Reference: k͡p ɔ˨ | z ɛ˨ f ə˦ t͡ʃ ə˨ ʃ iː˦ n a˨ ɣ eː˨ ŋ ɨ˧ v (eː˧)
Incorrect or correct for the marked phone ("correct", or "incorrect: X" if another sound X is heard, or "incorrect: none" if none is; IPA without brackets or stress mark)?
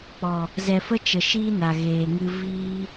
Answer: incorrect: iː˧